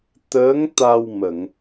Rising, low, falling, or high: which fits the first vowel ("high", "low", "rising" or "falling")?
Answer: rising